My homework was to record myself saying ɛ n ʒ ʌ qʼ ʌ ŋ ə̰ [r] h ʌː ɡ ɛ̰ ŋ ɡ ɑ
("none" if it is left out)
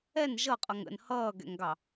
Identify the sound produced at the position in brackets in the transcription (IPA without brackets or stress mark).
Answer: n